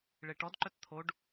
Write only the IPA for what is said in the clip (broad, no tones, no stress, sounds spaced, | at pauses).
ɭ e ʈ ɔ d ǃ œ t t̪ʰ o ɖ